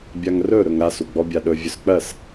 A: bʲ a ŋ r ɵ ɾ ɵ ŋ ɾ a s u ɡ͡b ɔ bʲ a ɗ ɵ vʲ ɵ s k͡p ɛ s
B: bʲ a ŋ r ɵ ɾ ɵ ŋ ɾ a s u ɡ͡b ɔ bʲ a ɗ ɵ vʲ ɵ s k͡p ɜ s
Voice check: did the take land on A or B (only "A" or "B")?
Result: B